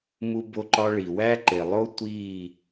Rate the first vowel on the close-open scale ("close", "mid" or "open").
close